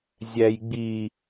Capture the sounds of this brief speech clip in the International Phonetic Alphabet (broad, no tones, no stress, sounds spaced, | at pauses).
zʲ æ j ɡ͡b i